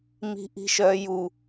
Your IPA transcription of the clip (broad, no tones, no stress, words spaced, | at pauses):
mi̤ʔi̤ʃœ ju